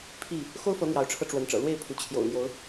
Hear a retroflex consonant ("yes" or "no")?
yes